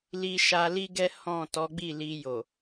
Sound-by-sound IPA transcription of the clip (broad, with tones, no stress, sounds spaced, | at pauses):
l i˧ ʃ a˧ l i˦ ɡ ɛ˦ h ɔ̃˦˨ t ɔ˨˦ ɡ͡b i˦˨ l i˧ j o˨